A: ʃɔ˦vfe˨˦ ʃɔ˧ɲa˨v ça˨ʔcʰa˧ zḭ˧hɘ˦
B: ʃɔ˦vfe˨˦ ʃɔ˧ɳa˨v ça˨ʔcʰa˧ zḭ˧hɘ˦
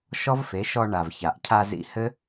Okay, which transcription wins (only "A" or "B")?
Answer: B